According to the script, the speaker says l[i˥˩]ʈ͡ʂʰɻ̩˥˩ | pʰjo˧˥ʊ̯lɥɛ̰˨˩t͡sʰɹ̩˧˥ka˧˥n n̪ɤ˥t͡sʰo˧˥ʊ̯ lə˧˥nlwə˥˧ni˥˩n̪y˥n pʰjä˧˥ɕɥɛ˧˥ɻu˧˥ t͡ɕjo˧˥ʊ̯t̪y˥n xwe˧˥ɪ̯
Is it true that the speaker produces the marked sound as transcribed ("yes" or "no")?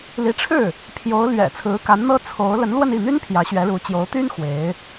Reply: no